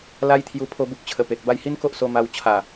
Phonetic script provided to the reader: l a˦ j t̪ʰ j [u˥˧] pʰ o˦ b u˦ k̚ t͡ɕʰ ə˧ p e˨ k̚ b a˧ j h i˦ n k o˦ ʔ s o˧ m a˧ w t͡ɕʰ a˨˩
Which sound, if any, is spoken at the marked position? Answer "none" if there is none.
u˧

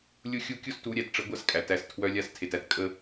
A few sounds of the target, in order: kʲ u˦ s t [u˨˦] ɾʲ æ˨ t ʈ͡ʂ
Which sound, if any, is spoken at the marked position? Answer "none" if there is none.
u˨˦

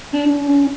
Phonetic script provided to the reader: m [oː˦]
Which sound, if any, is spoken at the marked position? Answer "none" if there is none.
uː˦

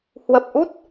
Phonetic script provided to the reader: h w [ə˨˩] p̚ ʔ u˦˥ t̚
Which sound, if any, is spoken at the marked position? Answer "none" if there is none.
ə˨˩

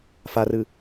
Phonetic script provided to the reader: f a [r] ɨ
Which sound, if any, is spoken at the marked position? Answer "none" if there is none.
r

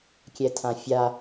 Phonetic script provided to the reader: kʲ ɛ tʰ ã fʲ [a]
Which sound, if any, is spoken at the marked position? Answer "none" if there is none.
a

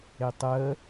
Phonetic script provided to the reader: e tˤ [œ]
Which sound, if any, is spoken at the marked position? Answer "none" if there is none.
ə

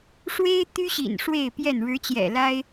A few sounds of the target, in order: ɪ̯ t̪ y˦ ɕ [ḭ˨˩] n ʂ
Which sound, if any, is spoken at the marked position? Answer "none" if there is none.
ḭ˨˩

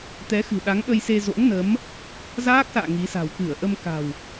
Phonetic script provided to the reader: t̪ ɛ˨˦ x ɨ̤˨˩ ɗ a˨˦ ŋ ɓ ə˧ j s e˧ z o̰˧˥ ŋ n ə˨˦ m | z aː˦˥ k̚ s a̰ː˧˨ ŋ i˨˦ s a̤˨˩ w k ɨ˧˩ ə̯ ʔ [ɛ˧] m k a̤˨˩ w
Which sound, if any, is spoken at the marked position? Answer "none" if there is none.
ə˧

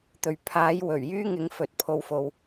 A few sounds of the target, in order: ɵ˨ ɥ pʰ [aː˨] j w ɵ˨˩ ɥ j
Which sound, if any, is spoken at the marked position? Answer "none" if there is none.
aː˨˥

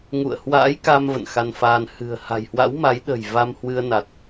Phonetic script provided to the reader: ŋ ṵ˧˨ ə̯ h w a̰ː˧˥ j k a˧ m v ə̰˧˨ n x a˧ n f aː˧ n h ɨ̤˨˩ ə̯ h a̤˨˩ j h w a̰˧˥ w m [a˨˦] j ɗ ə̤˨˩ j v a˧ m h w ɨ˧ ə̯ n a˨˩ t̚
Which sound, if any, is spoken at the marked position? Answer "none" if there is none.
a˨˦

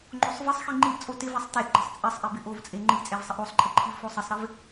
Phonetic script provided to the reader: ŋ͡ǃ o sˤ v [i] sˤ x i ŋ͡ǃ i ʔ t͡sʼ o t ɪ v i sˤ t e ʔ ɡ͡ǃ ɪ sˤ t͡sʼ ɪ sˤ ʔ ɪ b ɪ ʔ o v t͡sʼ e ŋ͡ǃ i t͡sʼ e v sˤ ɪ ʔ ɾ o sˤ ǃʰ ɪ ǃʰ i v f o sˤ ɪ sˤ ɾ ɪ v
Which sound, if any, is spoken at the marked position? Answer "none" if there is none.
ɪ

